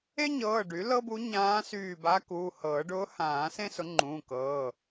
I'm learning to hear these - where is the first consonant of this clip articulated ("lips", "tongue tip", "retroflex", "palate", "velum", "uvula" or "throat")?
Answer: palate